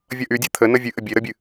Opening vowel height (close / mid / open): mid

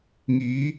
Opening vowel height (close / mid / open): close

